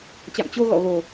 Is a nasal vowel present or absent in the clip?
absent